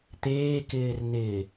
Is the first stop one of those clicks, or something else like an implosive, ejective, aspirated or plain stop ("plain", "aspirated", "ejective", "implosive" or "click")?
plain